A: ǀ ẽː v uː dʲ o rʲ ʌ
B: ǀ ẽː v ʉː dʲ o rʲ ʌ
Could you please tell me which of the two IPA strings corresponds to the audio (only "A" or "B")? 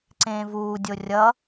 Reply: A